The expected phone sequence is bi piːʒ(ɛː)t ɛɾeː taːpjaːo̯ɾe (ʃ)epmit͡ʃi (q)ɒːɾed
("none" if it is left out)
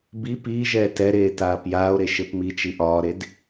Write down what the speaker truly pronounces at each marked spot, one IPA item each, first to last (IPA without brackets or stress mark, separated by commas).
ɛː, ʃ, ʔ